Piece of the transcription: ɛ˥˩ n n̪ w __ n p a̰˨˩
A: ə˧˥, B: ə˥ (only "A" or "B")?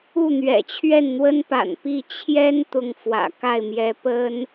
B